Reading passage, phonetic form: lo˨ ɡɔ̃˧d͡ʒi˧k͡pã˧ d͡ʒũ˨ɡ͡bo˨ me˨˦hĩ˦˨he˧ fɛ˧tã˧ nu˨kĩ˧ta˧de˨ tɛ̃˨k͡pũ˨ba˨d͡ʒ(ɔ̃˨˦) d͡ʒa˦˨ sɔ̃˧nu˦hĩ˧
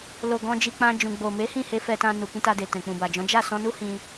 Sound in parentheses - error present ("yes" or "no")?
no